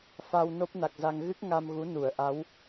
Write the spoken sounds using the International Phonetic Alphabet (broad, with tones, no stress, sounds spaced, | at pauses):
f a˧ w n o˦˥ p̚ n a˨˩ k̚ z a˧ ŋ ɣ ɨ˦˥ k̚ ŋ a˧ m ɣ u˨˦ n u˧˩ ə̯ ʔ a˨˦ w